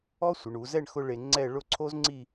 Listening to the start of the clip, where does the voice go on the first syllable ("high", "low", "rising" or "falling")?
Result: high